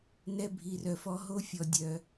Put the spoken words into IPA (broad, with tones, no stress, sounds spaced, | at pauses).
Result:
n ɛ˧ bʱ i˨ r œ˨ f ɔ˧ ɦ o˦ fʲ ɔ˧ dʲ œ˧